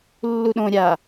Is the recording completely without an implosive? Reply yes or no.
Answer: no